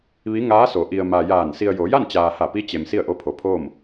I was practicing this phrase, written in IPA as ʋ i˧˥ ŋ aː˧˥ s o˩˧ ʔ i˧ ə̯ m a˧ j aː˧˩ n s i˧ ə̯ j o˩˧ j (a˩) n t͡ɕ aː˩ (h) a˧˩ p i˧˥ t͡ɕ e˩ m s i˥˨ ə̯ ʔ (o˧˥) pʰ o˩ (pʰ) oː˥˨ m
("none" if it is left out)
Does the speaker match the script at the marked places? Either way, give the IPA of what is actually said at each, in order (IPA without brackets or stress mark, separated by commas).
a˥˨, h, o˧˥, pʰ